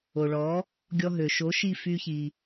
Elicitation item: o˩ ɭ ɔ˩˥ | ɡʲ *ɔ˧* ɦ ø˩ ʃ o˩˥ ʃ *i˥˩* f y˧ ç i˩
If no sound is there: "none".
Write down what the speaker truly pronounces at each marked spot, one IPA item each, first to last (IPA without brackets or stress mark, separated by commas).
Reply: ɔ˧, i˥˩